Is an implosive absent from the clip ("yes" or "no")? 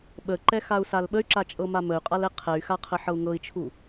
no